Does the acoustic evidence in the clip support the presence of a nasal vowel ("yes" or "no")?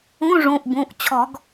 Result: yes